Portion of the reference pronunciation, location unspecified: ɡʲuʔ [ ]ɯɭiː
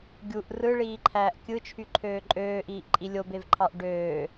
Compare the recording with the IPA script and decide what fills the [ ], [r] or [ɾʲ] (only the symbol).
r